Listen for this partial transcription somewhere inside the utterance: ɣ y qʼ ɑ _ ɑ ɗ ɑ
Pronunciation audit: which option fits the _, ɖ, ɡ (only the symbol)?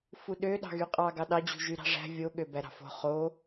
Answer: ɡ